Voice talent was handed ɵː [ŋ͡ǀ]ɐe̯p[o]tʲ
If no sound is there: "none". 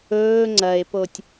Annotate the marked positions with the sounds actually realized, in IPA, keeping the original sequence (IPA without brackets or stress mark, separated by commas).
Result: ŋ͡ǀ, o